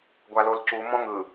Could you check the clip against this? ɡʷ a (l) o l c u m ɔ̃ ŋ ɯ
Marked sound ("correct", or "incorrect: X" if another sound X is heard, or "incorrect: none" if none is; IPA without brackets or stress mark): correct